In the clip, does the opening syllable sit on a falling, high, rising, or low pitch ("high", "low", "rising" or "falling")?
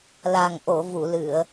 low